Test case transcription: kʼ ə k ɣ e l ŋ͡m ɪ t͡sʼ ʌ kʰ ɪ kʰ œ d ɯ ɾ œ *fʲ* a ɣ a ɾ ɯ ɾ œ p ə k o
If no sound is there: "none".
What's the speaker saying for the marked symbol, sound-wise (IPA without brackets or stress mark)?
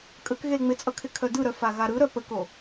f